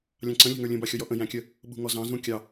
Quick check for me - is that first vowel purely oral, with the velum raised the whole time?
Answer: no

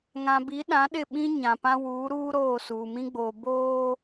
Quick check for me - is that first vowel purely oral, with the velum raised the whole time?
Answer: no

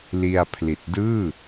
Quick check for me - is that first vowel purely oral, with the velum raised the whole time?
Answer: yes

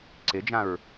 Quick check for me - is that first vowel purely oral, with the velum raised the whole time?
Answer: yes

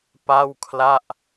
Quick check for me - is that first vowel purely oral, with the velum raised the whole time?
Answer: yes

